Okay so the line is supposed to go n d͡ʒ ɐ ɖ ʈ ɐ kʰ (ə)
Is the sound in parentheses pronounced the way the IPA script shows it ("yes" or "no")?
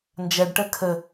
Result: yes